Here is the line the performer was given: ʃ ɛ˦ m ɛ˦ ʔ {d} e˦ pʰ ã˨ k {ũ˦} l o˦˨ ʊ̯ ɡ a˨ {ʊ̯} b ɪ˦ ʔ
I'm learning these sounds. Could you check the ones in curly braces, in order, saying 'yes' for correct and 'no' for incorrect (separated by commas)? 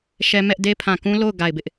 yes, yes, no